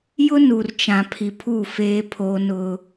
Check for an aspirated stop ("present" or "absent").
present